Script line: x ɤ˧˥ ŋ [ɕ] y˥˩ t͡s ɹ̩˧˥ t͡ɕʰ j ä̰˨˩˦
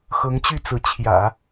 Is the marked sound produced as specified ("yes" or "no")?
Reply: no